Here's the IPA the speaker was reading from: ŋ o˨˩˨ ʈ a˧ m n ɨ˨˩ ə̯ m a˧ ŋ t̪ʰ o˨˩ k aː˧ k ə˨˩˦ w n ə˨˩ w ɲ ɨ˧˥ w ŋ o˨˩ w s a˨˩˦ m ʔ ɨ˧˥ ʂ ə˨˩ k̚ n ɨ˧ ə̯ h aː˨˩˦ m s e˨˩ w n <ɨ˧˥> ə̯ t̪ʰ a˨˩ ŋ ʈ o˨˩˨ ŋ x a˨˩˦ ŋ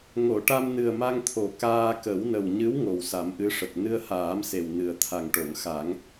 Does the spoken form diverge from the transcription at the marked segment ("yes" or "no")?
yes